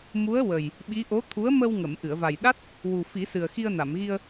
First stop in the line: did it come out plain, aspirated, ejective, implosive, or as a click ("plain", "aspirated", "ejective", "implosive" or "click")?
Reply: implosive